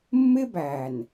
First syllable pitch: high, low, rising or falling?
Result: high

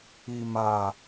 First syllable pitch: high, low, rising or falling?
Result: low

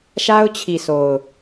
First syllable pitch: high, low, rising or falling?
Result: high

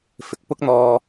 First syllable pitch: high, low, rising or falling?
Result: low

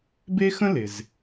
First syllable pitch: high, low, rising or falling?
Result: high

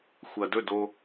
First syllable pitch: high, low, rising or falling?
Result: low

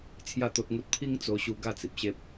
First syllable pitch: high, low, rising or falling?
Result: falling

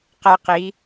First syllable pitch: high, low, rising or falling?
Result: high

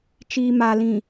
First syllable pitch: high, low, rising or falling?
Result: low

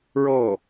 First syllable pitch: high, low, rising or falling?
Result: falling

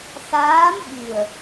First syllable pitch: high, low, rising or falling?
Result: rising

